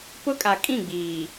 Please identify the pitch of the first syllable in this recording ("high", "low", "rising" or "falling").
high